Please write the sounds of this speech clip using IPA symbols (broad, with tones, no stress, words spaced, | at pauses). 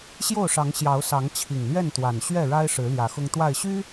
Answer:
ɕjo˥˨ʊ̯ʂɑ˨˦ŋ ɕjɑ˨˦ʊ̯sɑ˨˦ŋ t͡ɕʰi˨˩ŋlɥɛ˥˨nt̪wa˨˩n ɕɥɛ˥˨ɻa˦ɪ̯ʂɻ̩˨˦ ljä˨˦xʊ˦ŋt̪wa˥˨ɪ̯ ɕy˦